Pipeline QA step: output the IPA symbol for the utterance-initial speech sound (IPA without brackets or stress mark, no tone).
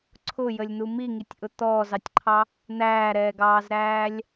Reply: ǀʰ